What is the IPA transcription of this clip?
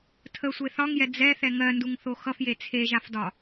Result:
tʰ ə sʷ e θ ɒ ŋ j ɛ d͡z ɛ θ ɛ ŋ ɜ n d u ŋ θ o x ʌ f j e t͡sʰ e ʒ a f d ɒ

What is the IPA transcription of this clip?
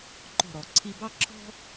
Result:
ǃ ɔ̤˥˧ ɾ ɔ˧ ǀʰ i˥ b ɑ˥ ǁʰ ɔ̤˥

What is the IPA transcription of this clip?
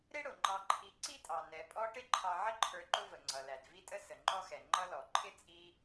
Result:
ɾ ɪ˥ ɽ ʊ˩ ŋ͡ǃ ɑ˨ ǃʰ i˨ ǀ i˥ tʼ ɑ˩ n ɛ˨ pʼ ɔ˦ ʈ ɪ˥ ǃʰ ɑ˨ ʕ ə˦ ǃʰ ə˞˨ ǃ ʊ˦ v ə˩ ŋ͡ǀ ʌ˩ l æ˩ d v i˥ tʼ ə˥ s ə˩ ŋ͡ǃ ɔ˥ x ɛ˩ ŋ͡ǃ ʌ˦ l ɔ˩ ǃʰ ɪ˥ t͡sʼ i˦

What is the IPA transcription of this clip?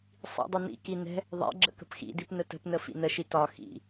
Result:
sˤ ḭ dˤ ʊ n ḭ k i n ɛ̤ | ðˤ ɛ̰ ɡ͡ǁ ə̰ k ə̤ p x ḭ d i p n ə t ə̤ p n ə f ḭ n ə ʃ i t ɒ x ḭ

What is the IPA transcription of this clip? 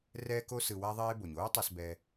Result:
r ɛː˥ k o˥ s ɯ˧ w a˥ ðˤ eː˥ b o˩ ɲ oː˥ tˤ ʌ˧ s b ɛː˧

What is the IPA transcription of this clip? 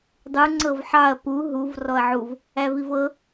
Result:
dˤ u ŋ͡ǀ ɤ v ħ ɑ ɐ̯ p u ɦ u v r ɔ ɐ̯ ʕ u v | æ v i v ɤ

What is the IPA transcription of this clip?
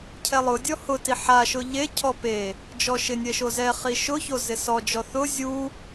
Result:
cʰ ɛ lˠ ʊ dʲ ɔ h ʊ t i ħ a ʃ ʊ ʎ e cʰ ɔ p e | d͡ʒ ɔ ʃ ɪ nʲ ɛ ʃ o z ɛ χ i ʃ ʊ ç o z ɪ s ɔ d͡ʒ ɔ θ ʊ zʲ u

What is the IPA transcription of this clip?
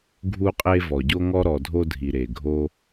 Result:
ɡʱ u˧ qʼ e˧ v ɔ˩ ɟ o˧ ŋ ɔ˧ ɾ ɔ˩ dʱ o˧ dʱ i˩ ɾ e˩ ɡʱ o˧

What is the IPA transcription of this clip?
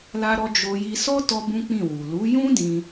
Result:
l a˦ ɾ ɔ˦ d͡ʒ o˧ j i˧ s ɔ˦ t ɔ˦ b ũ˦ k͡p ĩ˦˨ w u˨ l u˨˦ j ũ˦ d ĩ˦

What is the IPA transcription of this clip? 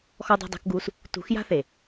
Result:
x ɔ˧ dˤ e̤˧ dˤ e̤˧ k ɡ uː˧ s | t ṳ˨˦ x j a̤˦ θ e˨

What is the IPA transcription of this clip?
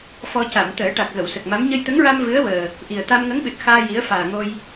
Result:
f ɔ˧ c a˨˩˨ m t̪ əː˨˩˦ ʈ a˨˩ k̚ ɣ ə˨˩˨ w s ə˨˩ k̚ m a˧˥ m ɲ ə˧ j t̪ ə˧˥ ŋ ɹ a˧ m v ɨ˧˥ ə̯ w əː˨˩ | ʔ i˨˩ ə̯ t̪ a˧ m ŋ ə˧˥ ŋ ɓ ɨ˨˩ t̚ x aː˧ j i˧˥ ə̯ f aː˨˩ ŋ o˧ j

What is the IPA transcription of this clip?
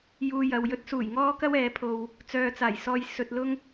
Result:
j uː˧ j ɐ˨ w j ɵ˥ t̚ s uː˨˩ j ŋ ɔː˥ k ɐ˥ w ɛː˨˧ pʰ o˧ w | t͡s œː˨ t͡s aː˨˩ j s ɔː˧ j s ɵ˧ t̚ l ʊ˥ ŋ

